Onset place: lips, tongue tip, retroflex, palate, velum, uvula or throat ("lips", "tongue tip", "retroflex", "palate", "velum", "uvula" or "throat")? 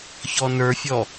palate